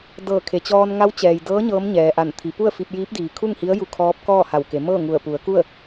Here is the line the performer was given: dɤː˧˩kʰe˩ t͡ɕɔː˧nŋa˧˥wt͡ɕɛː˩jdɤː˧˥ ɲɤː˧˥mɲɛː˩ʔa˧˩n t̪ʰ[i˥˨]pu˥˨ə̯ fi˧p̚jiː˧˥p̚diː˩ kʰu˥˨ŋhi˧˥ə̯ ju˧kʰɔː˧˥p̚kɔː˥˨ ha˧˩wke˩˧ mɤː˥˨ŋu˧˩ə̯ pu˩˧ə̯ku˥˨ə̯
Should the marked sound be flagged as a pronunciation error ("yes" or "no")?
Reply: yes